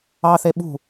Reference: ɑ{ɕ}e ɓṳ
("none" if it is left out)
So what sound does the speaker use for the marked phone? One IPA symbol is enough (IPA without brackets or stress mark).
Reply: θ